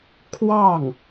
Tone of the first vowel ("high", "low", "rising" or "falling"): falling